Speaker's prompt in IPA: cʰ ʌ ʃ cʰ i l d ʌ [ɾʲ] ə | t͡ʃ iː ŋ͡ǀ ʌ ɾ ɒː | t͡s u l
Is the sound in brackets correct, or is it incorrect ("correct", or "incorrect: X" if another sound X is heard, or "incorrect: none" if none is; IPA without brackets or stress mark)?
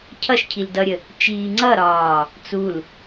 correct